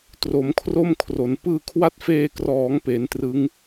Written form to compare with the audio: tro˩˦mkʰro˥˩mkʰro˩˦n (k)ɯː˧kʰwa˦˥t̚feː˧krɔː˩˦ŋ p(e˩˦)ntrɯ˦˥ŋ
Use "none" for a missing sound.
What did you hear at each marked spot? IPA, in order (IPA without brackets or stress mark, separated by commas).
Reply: p, e˩˦